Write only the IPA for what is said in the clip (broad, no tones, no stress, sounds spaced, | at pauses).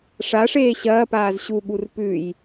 ʂ a ʂ eː ɕ ɐː p aː z ɕ u ɠ u r p ʉ j